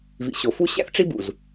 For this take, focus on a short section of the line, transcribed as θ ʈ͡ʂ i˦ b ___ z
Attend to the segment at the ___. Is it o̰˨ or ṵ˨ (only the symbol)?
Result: ṵ˨